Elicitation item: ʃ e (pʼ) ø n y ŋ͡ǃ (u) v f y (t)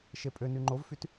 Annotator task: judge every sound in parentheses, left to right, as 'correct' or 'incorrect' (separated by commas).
correct, incorrect, correct